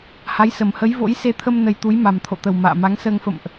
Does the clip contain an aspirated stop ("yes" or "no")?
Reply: yes